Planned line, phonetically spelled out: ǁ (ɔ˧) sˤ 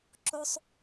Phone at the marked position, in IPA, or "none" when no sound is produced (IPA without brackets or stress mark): o˧